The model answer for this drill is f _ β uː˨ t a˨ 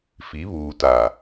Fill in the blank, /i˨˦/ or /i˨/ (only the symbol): i˨˦